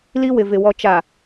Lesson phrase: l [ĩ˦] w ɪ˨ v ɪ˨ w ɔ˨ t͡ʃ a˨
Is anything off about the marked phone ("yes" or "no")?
yes